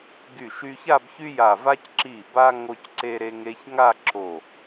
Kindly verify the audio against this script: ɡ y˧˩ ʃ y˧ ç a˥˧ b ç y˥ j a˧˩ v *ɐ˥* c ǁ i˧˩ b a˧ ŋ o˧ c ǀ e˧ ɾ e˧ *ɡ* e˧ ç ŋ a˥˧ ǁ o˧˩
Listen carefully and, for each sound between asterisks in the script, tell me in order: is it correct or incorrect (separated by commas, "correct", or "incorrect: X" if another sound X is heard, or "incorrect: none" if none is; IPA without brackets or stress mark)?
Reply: incorrect: a˥, incorrect: ŋ